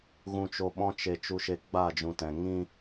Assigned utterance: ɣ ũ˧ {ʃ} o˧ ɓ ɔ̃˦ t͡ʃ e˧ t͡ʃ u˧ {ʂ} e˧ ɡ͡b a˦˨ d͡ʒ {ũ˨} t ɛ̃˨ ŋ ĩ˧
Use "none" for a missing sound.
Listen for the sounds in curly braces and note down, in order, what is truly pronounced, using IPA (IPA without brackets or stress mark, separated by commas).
t͡ʃ, ʃ, ũ˨